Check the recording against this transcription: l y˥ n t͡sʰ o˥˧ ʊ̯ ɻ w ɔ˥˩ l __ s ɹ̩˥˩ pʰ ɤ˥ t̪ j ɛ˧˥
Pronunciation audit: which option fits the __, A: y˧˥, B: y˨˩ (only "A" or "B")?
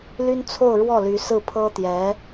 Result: A